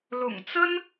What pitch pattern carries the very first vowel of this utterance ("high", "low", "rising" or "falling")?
low